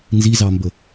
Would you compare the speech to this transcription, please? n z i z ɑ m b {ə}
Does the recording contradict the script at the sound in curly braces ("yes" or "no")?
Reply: no